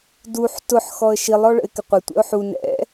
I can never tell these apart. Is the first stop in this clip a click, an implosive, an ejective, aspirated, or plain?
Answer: plain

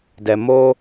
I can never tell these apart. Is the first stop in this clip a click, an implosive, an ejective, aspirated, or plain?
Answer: plain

